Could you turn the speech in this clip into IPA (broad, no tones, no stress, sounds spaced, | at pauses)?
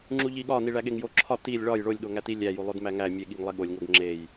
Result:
ŋ͡ǁ u ʎ i ɠ ɒ n i ɭ æ ɠ e ŋ j o ǁʰ ɒ t i lʲ ɭ ɒ j ɭ o lʲ ɠ o ŋ æ t i lʲ æ j u lˠ o d m æ ŋ æ mʲ e ɠ i ŋ lˠ e ɠ o lʲ ŋ o ɡ ŋ͡ǁ e j